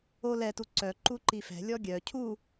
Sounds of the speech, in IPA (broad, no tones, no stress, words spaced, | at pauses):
o lɛtu ǀœ ǃuǃifɛ̤lʲɔ ɡʲœ cʰu